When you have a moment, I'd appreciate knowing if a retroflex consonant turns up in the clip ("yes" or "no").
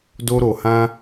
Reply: no